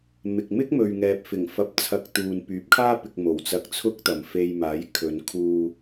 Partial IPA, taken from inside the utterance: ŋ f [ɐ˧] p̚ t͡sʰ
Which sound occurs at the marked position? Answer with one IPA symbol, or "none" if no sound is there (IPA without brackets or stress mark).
ɐ˨˥